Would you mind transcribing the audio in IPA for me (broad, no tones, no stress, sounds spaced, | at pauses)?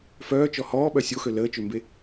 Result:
f œː t͡ʃ ɔ h ɔː ɓ œ sʲ o x ø l əː t͡ʃ ø m b e